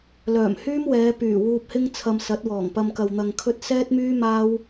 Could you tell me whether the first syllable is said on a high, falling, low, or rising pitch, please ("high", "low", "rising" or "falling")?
low